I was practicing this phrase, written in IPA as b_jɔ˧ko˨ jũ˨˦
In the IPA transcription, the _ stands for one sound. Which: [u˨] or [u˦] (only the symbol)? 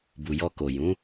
u˨